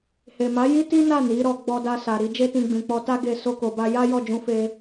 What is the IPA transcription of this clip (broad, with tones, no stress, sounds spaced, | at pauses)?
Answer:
h e˨ m a˨˦ j i˦ t i˦ n a˦˨ n i˨˦ ɾ ɔ˧ ɡ͡b ɔ˧ d a˧ s a˨ ɾ i˧ d͡ʒ e˦ t ĩ˧ ɡ͡b ĩ˨ k͡p ɔ˧ t a˦ ɡ e˧ s o˧ k o˨ b a˧ j a˦ j ɔ˦˨ d͡ʒ ũ˧ f e˧